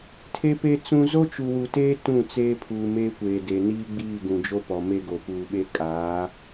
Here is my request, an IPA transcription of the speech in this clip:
tʰ e˦ p e˦ t͡s ũ˦ z o˦ t͡ʃ u˨ w u˨ t eː˦ t ũ˦˨ t͡s eː˦ pʰ uː˨ m eː˦ kʷ eː˨ d e˨ n iː˦ ɡ͡b iː˦˨ ɡ ũ˨ d͡ʒ o˦ p ɔ˨ m e˦ ɡ o˨ p uː˨ ɓ e˦ kʼ aː˨˦

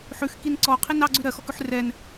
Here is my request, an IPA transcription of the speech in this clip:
ħ ʉ x k i n ǀ ɔ qʰ i n ɑ ɡ͡ǀ ʉ ɾ ɜ x ɔ k ʉ ħ r ɛ n

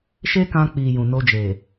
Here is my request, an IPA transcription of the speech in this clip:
ʃ e˦ k ã˧ k͡p i˨ j ũ˨ n o˧ d͡ʒ e˨

